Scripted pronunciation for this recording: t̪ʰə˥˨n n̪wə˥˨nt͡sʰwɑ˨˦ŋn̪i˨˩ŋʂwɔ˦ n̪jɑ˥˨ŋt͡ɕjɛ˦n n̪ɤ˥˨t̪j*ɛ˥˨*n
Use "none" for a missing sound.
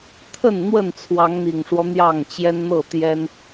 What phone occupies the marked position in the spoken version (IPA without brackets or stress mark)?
ɛ˦